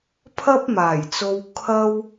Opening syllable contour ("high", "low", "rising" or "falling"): high